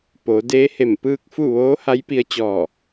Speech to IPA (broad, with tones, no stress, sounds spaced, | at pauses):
p o˩˧ d eː˧˥ h e˧˩ m p ɯː˥˨ k̚ f u˥˨ ʋ oː˧˥ h a˧˥ j p i˧ ə̯ t͡ɕ ɔː˧˩